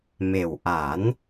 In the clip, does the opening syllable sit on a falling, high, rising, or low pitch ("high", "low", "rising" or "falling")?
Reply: low